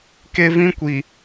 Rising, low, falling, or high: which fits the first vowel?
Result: high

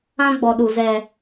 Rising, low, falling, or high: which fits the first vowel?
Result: high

